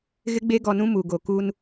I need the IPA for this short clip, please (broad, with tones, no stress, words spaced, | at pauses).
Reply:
ɣɪ˦ɡ͡be˦ɡɔ˨nũ˦ mu˨ɡo˨ ku˦n